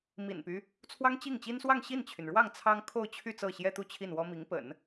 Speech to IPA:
m ḭ˨˩ n p y˦ | t͡sʰ w ɑ˥ ŋ t͡ɕ i˥˩ ŋ t͡ɕ i˥ n s w ɑ˥˧ ŋ ɕ i˥˩ n t͡ɕʰ y˩ n ɻ w ɑ˥˩ ŋ t͡sʰ ɑ˥ ŋ kʰ o˥˧ ʊ̯ t͡ɕʰ y˥˧ t͡s ɤ˥˩ ɕ j ɛ˥ t̪ u˥˧ t͡ɕʰ i˥˩ n w ɔ˥ m i˧˥ ŋ p ə̰˨˩˦ n

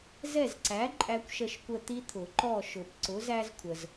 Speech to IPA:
z ɛ˦˨ z ǀ æ˨˥ ǃʼ æ˦ kʷ ʃ ə˦˨ ʃ kʷ ə˦˨ t̪ i˦ t̪ʰ ʊ˨˩˦ ǃ ɔ˦˨ ʃ ʊ˨˩˦ p ǀ ʊ˨˥ z æ˦ z kʷʰ ə˨ z

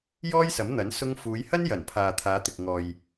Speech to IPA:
j ɔː˥ j s ɐ˨˥ m n̪ ɐ˨˥ n s ʊ˧ ŋ f uː˨˧ j h ɐ˥ n j ɐ˨˩ n pʰ aː˨ t̪ʰ aː˨˧ t̪ ɪ˨ k̚ ŋ ɔː˨ j

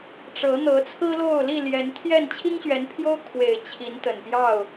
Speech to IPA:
ʈ͡ʂ ɤ˨˦ n̪ ɤ˨˦ t͡sʰ ɹ̩˦ l o˥˨ ʊ̯ l i˥˨ l j ɛ˨˦ n t̪ʰ j ɛ˥˨ n t͡ɕʰ i˦ ŋ ɕ ɥ ɛ˨˦ n pʰ j o˦ ʊ̯ kʰ w e˨˩ ɪ̯ t͡ɕʰ i˨˦ n t̪ ə˨˩ n p j ɑ˥˨ ʊ̯

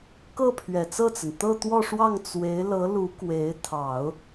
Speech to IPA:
k ɤ˥˩ pʰ ɥ ɛ˨˩ t͡s ɤ˥˩ t͡s ə˩ n t̪ ɤ˥˧ t̪ w ɔ˥˧ ʂ w ɑ˥˩ ŋ t͡s w e˧˥ ɪ̯ l ɤ˧˥ l u˧˥ k w e˧˥ ɪ̯ t̪ʰ ɑ˨˩˦ ʊ̯

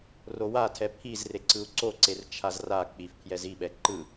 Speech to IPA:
r o w a tʰ ɛ pʰ i z r e ǀ ɯ u̯ ǀ o ǀ e r t͡ʃʰ a z r a k͡p i f pʰ j ɛ z i ɓ ɛ ǃ ɯ

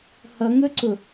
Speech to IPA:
h ʌ ŋ ɵ ǀ ʊ

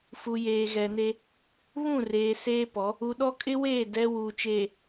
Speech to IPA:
f u˨ j eː˨ ɣ ɛ˨ n e˦ | β ũ˦˨ r eː˨ s eː˦ p ɔ˨˦ | u˨ ɗ ɔ˦ kʼ ɪ˦ w eː˦˨ d ɛ˦ w uː˨ t͡ʃ eː˨

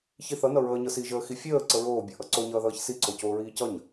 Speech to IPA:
ç i θ ʌ n ʌ ɹ əː ɲ ɤ s i ʒ əː x i fʲ əː ǀ ə ɹ oː bʲ ɤ ʔ ʌ ǀ o ɲ ʌː ð ʌː ç s i ǀ o c oː ɹ iː c ʌ ɲ

